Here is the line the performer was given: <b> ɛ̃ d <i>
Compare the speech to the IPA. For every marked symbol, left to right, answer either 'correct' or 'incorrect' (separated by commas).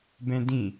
correct, incorrect